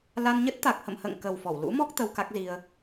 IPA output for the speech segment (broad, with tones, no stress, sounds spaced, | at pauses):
l a˧ n ɲ ə˦˥ t̚ t̪ a˨˩ k̚ h ə̰˧˨ m h ə̰ː˧˨ ŋ k ə˨˩ w f ɔ˧˩ w l ṵ˧˥ m ɔ˦˥ k̚ t̪ ə˧ w k a˦˥ k̚ z i˧ ə̯